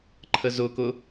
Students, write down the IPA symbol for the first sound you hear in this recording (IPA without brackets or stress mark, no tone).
ǃʰ